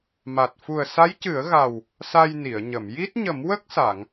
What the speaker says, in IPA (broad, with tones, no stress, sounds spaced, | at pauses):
m a˨˩ t̚ f u˨˩ ə̯ s a˧˥ j c ɨ˨˩˦ ə̯ ɣ a˨˩ w | s a˧ j n i˨˩˨ ə̯ ɲ ə˨˩˨ m j i˦˥ t̚ ɲ ə˨˩˦ m w ə˦˥ k̚ s a˨˩˨ ŋ